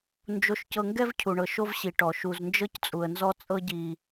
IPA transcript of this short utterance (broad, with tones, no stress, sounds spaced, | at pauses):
n d͡ʒ o˨ ʃ c ɤ˨ ŋ ɡ ɛ˦ v cʰ u˨ ɳ ɤ˨ ʃ o˦ v ɕ i˨ ʈ ɔ˨ ʃ u˨ z n d͡ʒ ɤ˦ c t͡sʼ u˨ ə̯ n z ɔ˦ t͡sʼ ɤ˦ ɟ i˦